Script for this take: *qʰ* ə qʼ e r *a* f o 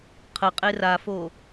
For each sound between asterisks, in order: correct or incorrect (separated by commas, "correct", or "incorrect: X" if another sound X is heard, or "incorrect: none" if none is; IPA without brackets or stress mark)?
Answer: correct, correct